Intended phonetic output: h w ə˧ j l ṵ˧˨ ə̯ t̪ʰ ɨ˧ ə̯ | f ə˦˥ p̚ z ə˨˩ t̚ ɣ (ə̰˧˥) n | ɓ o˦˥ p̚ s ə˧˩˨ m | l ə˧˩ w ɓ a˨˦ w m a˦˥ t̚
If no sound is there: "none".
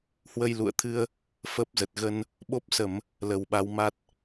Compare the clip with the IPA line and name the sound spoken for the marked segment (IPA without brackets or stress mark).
ə˧